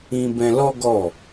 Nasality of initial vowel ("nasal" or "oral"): nasal